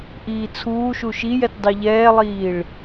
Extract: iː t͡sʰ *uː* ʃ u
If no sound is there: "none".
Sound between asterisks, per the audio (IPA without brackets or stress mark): uː